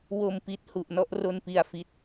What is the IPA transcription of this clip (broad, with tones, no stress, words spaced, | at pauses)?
wo˨˩mpi˨˩t̚ hu˨˩ʔnɔ˦˥ʔro˧npi˨˩a̯ fi˦˥t̚